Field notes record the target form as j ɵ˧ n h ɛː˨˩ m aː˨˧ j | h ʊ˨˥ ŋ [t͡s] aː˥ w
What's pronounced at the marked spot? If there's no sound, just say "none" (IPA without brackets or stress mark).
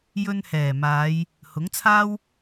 t͡sʰ